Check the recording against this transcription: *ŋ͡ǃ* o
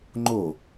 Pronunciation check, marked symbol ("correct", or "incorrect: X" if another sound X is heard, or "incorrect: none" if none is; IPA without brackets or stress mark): correct